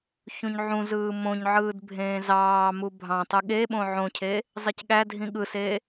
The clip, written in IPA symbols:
ç ũ ɲ ʕ ũ z ɯː m õ ɲ ʕ ɯː d bʱ ẽː z ɑː m u bʱ ɑ̃ tˤ ɯ ɠ e ɓ õ ʕ õ cʰ e | zˤ i c ɠ æ dʱ ĩ ɠ ɯ s e

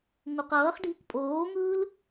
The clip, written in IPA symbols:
ŋ u q ʌː χ ɖʱ i k pʼ oː ŋ ɯː l

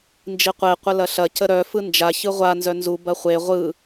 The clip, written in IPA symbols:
n d͡ʒ i qʷ e qʷ ə l ɐ ɬ ɐ c ə ɾ œ f ɯ n d͡ʒ a ç ɯ ʁʷ a n z œ n z u b ɐ χʷ e ʁʷ ɯ

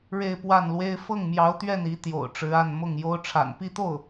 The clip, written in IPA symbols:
ɻ e˥˧ ɪ̯ p w a˥˩ n l w e˥ ɪ̯ f ɤ˥˩ ŋ m j ɑ˧˥ ʊ̯ t̪ ɥ ɛ˥˩ n i˧˥ t̪ j o̰˨˩ ʊ̯ ʈ͡ʂ ɻ̩˧˥ a˥˧ n m ʊ˥˩ ŋ j o˥ ʊ̯ ʈ͡ʂʰ a̰˨˩ n p i˥˧ t̪ o˥˩ ʊ̯

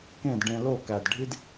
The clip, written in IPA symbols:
k ẽ˦˨ d ɖ ẽ˧ l o˦˨ k æ˨ d ɖʱ i˦ d

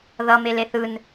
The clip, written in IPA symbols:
ð ʌ m e l e θ ɯ n

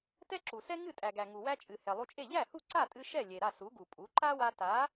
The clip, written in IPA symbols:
t ɛ˥ ǁ u˩ s ɛ˥ ŋ ɨ˥˩ tʼ æ˩ ɡ æ˩ ŋ u˩ w æ˧ t͡ʃʼ ɨ˩ h ɛ˩ lˠ u˧ t͡ʃʼ e˥˩ ʎ æ˥˩ h u˥˩ ǀ a˥˩ tʼ ɨ˧ ʃ ɛ˥˩ lʲ e˩ ɾ a˥˩ s u˩˥ ɡ u˩ pʼ u˩˥ ǃ a˥ w a˧ t a˩˥

